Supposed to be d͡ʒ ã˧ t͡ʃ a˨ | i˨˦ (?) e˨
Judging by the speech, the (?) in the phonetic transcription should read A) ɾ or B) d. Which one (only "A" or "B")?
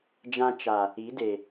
B